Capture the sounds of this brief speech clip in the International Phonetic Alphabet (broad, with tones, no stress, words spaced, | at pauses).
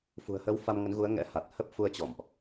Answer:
fṳ˨˩ə̯hə˨˦w fa˧mŋə˨˦nɣu˨˦ə̯ ŋɛ̰˧˥ha˨˩t̚ hə˦˥p̚fu˧ə̯ t͡ɕɔ̰˧˨mʔ